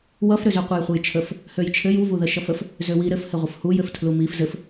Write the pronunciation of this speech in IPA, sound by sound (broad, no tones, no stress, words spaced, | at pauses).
wʌfɾøzø qʷʌjχʷəjt͡ʃʰəf | højt͡ʃʰɘj uvuðə ʃʌfəf | zøwi ɾɘfhɘ ʁʷəfhujɘftʰlu mif zɘf